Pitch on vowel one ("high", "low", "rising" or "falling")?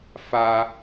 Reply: high